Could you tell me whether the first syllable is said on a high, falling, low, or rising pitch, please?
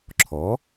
rising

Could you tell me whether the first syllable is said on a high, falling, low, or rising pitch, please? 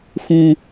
low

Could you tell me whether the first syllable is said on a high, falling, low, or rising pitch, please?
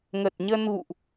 low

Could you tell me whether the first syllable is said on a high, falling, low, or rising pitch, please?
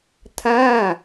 falling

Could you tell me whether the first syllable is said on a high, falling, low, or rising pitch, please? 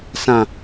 falling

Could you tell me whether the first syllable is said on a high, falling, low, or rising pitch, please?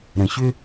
low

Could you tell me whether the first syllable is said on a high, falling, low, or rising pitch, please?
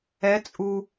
rising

